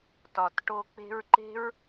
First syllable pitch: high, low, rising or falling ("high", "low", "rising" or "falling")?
low